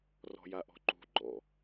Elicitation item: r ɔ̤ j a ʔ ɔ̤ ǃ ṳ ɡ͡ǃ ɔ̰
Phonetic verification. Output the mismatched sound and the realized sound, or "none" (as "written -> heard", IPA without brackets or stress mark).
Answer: none